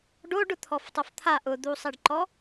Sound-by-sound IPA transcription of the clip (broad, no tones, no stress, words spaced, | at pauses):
ɖoɖ ʊt̪ʰɔftˤoft̪ʰa ʔʊd̪usˤeɖǃɔ